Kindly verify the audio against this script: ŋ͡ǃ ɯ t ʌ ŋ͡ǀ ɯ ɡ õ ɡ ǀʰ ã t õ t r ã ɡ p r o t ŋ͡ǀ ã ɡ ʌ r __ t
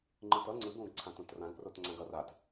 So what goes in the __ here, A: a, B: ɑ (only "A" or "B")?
A